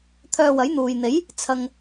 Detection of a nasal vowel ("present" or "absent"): absent